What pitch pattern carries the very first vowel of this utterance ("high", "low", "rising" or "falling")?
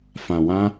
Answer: low